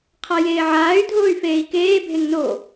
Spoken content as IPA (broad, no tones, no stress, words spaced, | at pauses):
qʰajeːʕaːy̯ dʱoːy̯feːi̯keː bʱeŋno